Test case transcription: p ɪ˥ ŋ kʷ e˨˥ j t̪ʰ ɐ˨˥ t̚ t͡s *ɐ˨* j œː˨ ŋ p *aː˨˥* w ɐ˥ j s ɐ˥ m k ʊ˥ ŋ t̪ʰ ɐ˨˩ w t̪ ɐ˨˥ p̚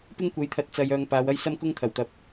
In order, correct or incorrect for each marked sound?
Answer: correct, incorrect: aː˨˧

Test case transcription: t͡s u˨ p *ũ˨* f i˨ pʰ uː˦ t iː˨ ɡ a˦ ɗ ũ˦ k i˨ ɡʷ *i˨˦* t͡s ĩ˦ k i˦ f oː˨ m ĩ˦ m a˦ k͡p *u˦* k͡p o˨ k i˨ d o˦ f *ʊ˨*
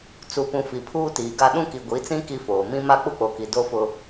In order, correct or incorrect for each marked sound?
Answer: correct, correct, correct, incorrect: ʊ˦

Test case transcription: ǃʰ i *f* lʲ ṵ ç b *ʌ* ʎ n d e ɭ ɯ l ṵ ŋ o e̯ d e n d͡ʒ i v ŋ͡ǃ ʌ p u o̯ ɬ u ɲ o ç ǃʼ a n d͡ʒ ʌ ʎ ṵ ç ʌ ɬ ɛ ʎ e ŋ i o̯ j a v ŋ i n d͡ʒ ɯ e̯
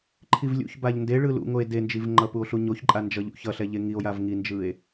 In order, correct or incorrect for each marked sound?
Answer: incorrect: v, incorrect: a

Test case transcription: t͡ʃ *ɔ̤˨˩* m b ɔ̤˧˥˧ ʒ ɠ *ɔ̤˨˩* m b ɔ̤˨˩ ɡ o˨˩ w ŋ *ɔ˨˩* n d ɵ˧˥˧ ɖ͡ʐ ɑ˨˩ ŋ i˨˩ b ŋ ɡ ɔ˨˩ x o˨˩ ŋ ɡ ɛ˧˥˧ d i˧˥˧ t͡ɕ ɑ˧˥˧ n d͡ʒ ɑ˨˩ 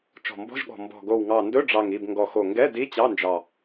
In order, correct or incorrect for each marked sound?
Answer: correct, correct, incorrect: ɑ˨˩

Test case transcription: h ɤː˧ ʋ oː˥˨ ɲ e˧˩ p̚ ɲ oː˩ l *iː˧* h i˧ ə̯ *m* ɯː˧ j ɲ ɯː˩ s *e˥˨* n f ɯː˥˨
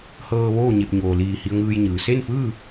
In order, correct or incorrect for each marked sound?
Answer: incorrect: iː˧˩, incorrect: ŋ, correct

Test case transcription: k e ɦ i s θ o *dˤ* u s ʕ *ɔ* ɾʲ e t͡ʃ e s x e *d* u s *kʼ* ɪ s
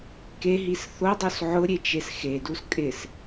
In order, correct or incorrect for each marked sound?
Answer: correct, incorrect: ʊ, correct, correct

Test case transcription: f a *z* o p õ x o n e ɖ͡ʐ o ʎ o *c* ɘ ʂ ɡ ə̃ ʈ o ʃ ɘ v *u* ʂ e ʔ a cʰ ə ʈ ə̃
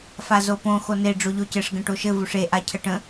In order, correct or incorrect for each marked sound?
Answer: correct, correct, correct

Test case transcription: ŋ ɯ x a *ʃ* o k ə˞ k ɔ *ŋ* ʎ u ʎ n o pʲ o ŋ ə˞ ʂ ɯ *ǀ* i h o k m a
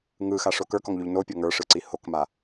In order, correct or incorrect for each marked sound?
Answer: incorrect: ʂ, correct, correct

